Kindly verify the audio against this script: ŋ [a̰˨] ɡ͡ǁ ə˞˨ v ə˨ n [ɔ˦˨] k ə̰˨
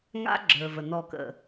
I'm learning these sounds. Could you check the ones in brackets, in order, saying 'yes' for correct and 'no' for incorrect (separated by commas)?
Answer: no, yes